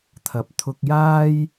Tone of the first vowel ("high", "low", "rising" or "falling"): rising